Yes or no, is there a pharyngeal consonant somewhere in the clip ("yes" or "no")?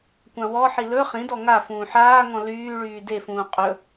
yes